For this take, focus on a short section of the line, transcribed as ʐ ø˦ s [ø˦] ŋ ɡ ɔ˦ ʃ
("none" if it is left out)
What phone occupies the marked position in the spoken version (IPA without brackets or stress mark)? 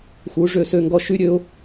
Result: ø˦